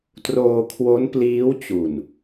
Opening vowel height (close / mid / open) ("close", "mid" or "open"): mid